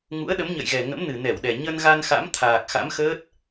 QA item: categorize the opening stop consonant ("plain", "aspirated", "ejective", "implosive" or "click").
implosive